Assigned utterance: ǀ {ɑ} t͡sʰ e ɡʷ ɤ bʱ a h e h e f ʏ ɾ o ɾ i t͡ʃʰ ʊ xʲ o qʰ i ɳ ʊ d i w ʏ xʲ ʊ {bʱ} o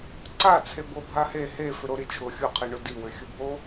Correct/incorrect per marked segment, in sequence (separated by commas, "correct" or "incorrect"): incorrect, correct